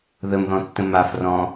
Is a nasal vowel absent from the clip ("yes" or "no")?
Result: no